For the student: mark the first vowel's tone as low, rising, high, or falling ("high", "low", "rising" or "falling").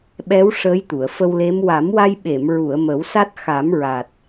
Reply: rising